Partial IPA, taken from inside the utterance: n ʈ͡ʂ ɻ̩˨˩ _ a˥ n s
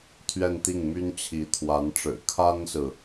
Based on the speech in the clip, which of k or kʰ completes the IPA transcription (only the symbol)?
kʰ